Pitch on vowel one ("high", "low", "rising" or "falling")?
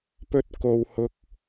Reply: high